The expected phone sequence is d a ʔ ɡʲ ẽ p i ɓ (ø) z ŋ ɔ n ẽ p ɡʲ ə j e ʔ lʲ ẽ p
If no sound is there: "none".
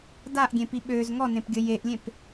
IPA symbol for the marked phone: ø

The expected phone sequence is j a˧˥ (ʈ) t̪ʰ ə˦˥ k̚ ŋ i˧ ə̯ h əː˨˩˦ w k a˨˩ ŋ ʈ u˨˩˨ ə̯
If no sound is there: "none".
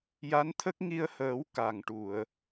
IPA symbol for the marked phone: n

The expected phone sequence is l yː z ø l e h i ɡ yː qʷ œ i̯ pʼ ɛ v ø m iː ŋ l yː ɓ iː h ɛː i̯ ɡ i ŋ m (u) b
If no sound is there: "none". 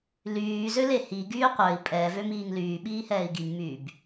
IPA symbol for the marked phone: y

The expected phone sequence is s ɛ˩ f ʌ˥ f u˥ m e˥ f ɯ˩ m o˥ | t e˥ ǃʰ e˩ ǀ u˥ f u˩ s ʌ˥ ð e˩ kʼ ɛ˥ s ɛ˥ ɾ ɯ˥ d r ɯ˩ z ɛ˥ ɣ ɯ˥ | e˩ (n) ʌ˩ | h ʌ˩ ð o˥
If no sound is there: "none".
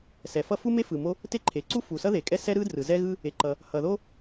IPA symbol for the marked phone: ǃ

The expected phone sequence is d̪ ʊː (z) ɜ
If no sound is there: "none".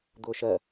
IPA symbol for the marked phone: ʃ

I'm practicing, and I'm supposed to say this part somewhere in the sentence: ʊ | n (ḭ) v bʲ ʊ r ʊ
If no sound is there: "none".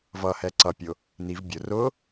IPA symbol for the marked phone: i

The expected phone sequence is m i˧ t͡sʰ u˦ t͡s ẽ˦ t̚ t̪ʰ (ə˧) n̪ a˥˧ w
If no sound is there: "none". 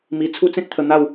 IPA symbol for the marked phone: ə˧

